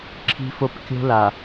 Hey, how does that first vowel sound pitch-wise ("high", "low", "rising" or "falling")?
low